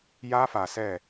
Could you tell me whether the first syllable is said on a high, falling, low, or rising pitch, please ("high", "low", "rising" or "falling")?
high